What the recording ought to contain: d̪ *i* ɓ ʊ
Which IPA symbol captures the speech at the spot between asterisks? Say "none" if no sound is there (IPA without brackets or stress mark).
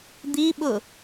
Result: i